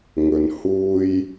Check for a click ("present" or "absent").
absent